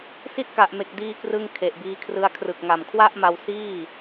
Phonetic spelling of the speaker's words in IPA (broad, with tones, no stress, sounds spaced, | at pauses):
s i˥˩ t̚ k a˨˩ ʔ m e˨˩ k̚ d iː˧ k r ɯ˧ ŋ kʰ e˨˩ ʔ b iː˧ kʰ r ɯ˦˥ a̯ kʰ r ɯ˨˩ k̚ ŋ a˨˩ m kʰ w a˥˩ ʔ m a˧ w s iː˥˩